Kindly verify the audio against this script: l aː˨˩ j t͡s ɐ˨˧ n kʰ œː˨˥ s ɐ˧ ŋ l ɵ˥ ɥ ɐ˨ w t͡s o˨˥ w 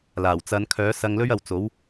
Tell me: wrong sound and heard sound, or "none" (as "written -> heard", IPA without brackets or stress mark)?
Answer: j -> w